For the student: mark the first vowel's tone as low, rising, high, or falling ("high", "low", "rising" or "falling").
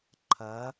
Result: rising